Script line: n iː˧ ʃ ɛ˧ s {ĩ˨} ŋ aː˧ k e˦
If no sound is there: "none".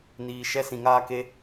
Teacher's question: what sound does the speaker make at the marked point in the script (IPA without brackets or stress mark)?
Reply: ĩ˨